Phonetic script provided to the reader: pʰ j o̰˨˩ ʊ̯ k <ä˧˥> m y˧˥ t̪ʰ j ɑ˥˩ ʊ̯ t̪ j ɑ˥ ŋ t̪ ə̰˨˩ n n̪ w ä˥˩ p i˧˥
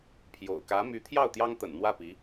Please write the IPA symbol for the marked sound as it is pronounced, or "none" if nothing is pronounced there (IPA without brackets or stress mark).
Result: ä˧˥